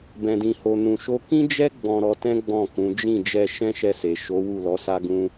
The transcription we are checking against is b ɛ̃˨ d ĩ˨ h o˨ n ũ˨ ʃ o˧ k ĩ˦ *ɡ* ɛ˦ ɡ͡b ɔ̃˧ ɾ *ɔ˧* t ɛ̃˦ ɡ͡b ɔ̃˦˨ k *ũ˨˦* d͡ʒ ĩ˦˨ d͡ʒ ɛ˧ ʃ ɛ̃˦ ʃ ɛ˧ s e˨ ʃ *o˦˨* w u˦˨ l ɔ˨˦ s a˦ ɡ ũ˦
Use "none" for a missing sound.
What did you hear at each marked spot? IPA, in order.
d͡ʒ, ɔ˧, ũ˨˦, o˨˦

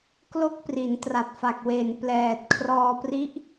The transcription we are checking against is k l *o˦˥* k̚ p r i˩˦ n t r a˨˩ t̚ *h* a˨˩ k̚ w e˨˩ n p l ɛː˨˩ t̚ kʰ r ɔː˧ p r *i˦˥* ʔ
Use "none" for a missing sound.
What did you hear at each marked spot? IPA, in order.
o˦˥, f, i˦˥

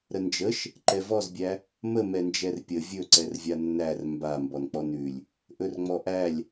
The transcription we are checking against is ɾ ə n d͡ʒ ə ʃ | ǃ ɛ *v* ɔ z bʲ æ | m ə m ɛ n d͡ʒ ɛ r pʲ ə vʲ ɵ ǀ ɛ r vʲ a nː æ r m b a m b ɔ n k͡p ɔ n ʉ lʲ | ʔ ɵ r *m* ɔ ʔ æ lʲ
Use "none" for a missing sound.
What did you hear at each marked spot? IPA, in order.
v, ŋ͡m

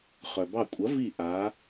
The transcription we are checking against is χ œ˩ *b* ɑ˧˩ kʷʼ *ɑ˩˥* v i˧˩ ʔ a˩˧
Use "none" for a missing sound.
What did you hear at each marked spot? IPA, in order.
b, ɐ˩˥

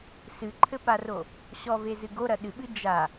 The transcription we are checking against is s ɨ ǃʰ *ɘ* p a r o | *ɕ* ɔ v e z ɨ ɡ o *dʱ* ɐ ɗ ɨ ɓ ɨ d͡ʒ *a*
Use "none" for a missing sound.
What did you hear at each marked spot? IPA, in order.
ɘ, ɕ, ɾ, a

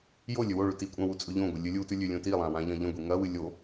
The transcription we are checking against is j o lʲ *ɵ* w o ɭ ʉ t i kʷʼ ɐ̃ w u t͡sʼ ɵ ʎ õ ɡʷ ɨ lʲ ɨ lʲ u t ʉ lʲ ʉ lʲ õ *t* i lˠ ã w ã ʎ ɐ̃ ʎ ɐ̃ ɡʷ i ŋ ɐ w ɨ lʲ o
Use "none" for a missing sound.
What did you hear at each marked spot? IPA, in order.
ɵ, t

